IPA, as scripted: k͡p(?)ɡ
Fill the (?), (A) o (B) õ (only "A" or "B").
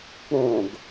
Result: B